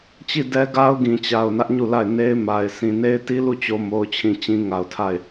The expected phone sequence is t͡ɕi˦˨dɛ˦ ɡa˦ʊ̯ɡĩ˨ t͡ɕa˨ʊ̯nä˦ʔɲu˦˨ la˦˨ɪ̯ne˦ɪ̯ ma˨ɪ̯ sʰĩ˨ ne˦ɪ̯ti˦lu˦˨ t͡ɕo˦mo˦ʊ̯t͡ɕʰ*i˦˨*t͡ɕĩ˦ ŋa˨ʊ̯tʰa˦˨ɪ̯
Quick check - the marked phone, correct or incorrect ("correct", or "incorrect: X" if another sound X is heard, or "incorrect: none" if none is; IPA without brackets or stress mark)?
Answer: incorrect: ĩ˦˨